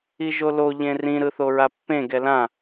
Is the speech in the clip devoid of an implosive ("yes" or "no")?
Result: yes